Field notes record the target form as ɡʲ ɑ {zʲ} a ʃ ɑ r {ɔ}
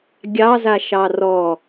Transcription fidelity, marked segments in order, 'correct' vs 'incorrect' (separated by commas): incorrect, correct